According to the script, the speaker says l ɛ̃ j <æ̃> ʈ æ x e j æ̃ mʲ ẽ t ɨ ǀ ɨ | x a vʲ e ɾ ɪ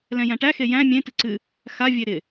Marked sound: correct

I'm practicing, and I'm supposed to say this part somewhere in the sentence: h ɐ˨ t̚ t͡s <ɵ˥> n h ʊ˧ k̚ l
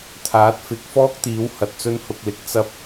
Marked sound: correct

